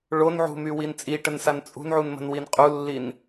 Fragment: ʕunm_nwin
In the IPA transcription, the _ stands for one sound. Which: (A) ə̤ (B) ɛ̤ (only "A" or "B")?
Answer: A